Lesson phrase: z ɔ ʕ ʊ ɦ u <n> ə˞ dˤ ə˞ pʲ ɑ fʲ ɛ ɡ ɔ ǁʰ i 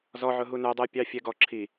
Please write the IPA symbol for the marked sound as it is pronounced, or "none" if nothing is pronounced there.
n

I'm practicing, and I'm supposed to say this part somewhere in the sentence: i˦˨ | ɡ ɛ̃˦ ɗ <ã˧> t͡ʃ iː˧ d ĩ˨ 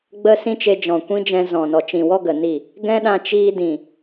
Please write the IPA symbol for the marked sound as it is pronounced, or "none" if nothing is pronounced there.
ã˧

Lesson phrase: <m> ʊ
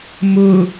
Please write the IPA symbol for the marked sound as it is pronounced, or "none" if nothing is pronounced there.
m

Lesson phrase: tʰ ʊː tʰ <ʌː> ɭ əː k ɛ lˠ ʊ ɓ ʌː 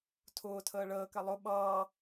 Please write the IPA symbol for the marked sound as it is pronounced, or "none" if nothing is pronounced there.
əː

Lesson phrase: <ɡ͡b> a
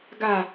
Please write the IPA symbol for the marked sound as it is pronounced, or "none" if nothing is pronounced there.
ɡ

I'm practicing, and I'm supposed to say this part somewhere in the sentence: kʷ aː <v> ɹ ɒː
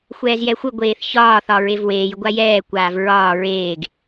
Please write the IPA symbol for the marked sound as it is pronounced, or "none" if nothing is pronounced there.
v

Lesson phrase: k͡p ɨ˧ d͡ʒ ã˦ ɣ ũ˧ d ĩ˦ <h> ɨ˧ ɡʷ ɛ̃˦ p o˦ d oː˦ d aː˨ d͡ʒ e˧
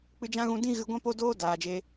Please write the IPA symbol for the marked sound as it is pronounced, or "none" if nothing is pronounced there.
ɣ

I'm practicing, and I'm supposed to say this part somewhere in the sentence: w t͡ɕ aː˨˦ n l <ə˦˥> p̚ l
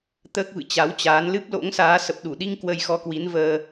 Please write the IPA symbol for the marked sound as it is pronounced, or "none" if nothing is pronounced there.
ɨ˦˥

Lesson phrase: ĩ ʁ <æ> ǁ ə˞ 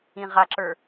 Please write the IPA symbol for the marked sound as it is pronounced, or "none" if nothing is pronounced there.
a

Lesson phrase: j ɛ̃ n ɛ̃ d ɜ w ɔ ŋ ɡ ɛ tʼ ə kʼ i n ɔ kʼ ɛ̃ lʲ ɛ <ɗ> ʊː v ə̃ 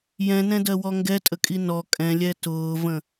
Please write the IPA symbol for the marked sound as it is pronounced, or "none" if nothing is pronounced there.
t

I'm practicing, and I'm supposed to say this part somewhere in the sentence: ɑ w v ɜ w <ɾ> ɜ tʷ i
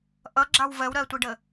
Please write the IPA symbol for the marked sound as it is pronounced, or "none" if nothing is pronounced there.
ɾ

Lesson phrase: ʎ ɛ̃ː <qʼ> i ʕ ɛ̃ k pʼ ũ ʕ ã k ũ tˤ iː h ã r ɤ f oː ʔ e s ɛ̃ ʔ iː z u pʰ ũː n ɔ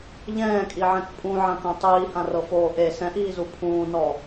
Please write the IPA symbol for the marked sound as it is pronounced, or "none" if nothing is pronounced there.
kʼ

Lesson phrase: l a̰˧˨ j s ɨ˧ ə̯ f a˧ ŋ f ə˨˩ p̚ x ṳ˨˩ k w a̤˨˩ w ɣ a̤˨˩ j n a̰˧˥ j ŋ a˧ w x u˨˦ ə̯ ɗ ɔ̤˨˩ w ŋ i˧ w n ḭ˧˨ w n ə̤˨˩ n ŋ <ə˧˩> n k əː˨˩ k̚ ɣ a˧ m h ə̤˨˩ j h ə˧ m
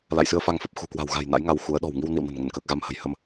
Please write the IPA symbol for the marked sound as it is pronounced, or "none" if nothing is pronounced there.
ə˧˩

